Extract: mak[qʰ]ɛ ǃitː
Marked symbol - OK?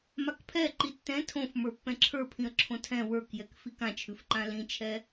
no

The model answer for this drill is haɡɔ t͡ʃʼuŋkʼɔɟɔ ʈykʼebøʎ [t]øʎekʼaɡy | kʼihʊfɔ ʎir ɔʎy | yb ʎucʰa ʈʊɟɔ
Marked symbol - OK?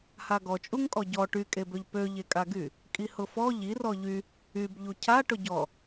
no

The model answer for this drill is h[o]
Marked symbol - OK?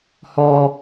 no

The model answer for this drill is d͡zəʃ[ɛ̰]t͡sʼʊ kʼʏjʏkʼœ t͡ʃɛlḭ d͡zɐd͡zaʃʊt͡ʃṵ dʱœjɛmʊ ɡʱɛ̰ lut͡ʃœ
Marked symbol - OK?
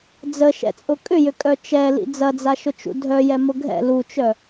yes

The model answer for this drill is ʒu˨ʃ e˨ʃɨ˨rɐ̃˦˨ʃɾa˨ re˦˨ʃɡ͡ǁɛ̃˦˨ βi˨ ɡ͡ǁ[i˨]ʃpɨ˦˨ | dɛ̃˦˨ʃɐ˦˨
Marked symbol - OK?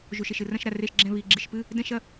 yes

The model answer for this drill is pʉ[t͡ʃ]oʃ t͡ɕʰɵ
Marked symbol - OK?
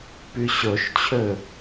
no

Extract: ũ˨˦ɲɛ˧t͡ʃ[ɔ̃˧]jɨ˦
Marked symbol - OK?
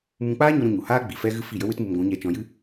yes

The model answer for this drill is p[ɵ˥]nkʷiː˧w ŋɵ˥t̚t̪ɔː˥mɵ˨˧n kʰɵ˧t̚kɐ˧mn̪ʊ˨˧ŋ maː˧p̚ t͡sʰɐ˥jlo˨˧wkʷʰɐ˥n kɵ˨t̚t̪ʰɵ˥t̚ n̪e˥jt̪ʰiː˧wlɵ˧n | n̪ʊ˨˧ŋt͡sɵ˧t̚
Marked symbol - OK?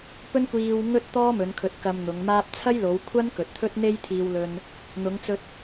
yes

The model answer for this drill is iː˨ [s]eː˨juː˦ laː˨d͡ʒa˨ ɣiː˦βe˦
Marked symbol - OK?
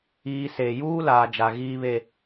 yes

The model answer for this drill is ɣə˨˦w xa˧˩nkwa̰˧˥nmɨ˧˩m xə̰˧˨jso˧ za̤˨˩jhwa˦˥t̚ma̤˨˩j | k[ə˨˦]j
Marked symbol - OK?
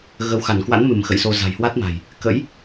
no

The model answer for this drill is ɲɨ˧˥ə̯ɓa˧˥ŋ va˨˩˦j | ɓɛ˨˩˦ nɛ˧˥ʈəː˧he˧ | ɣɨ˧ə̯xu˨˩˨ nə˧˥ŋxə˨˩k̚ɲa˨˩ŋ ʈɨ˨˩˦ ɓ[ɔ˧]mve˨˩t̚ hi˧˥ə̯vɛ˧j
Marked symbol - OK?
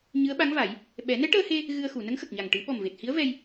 no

